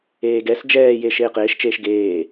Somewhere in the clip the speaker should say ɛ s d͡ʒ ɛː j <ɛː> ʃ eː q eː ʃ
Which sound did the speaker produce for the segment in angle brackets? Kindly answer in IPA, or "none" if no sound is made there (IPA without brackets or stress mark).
eː